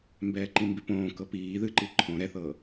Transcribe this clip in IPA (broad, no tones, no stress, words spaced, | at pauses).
mbɛːǃĩmbipõː kɤpiː ðɨǃi ǃʰõ ɾɛθɤː